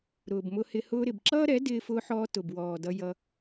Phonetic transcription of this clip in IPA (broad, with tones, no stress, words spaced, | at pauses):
ɾʊː˨bmʊ˧hɪ˧ hʊː˧ɾɪ˨bǁʌː˦ɾɛ˨˦ dɪː˧fʊː˧ħɔː˧ tʊ˨bwɔː˨dʌ˧ jʌ˧